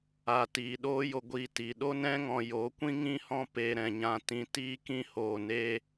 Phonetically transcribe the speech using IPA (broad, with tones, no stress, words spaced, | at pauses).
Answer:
a˨ tiː˨ɗoː˦ jo˧ ɡʷiː˧ tiː˨ ɗo˦nɛ̃˦ ŋɔ̃˧jo˨˦kʷĩ˦ ŋĩ˦hɔ̃˦peː˧ ɾɛ̃˨ɲã˧ tĩ˧tiː˦kĩ˦ hoː˨ neː˧